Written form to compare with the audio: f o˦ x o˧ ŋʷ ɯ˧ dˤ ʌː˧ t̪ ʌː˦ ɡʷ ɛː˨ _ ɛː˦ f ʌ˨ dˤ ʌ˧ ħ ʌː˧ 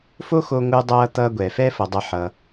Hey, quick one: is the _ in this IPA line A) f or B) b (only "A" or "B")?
A